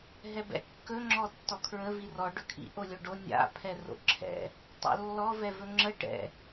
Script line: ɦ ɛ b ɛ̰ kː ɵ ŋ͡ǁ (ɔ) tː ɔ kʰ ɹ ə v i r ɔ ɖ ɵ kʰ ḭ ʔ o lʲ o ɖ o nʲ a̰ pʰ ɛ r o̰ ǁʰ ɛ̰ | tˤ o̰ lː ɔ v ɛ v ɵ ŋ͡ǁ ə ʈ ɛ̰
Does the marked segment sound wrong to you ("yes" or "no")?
no